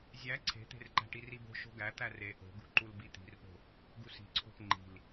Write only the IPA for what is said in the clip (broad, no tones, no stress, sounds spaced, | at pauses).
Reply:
zʲ æ ǀʰ e̤ t̪ e̤ r ǃ æ̤ ʈ i r i b o̤ ʃ o̤ ɡ æ t̪ æ r e ʔ o̤ ɡ ṳ ǃ u l b i t̪ i̤ r p o̤ | ɡ u s i̤ ǀʰ o̤ p ŋ͡ǃ i̤ l